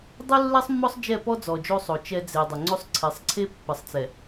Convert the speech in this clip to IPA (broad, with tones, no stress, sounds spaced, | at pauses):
dˤ u˦ lː ɛ˦ sˤ mː ɔ˦ sˤ d͡ʒ ɛ˦˨ p ɔ˦ d͡z ɔ˨ d͡ʒ o˦ sˤ o˨ t͡ʃ ɛ˦ d͡z e˨ dˤ ə˨ ŋ͡ǀ o˦ sˤ ǀʰ ɛ˨˦ sˤ ǀʰ e˦ pː ə˨ sˤ t͡s ɛ˨